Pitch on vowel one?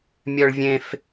high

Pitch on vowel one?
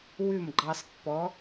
falling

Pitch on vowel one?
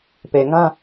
low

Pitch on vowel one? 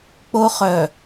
high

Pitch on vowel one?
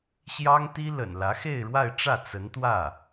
high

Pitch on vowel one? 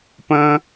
high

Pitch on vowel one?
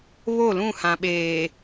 falling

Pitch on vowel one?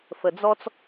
low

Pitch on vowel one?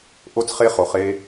high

